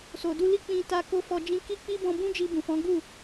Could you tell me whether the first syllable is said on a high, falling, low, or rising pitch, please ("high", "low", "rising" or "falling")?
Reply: low